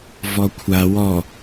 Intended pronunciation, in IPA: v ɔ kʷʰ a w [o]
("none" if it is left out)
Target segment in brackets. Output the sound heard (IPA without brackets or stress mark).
ɔ